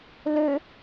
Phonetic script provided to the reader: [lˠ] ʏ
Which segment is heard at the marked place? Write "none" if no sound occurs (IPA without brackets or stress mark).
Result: l